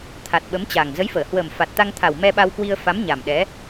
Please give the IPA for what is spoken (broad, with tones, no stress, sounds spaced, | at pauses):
t̪ʰ a˨˩ t̚ ɓ ə˨˦ m t͡ɕ a˨˩ ŋ z ə˨˦ j f əː˧˩ h w əː˨˩ m f a˨˩ t̚ t̪ a˧ ŋ t̪ʰ a˨˩ w m ɛ˧ ɓ a˧ w k w i˧ ə̯ f a˨˦ m ɲ a˨˩ m ɗ ɛ˨˦